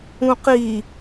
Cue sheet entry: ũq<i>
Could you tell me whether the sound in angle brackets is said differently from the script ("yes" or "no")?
no